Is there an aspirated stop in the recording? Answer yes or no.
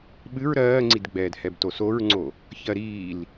no